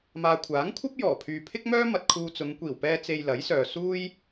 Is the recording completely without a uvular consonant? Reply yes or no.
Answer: yes